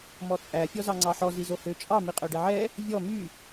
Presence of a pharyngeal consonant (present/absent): present